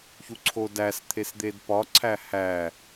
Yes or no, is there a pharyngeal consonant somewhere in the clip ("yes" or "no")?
no